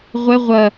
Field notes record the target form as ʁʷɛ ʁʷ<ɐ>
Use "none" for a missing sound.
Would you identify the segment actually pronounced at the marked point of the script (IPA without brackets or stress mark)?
ɐ